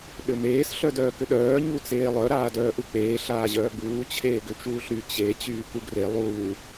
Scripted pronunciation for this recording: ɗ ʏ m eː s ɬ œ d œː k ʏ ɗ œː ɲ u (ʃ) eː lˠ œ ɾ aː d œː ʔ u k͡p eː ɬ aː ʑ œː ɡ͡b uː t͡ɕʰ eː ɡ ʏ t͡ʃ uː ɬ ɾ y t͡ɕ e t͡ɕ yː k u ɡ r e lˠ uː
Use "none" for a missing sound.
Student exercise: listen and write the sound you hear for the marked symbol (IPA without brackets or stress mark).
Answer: t͡s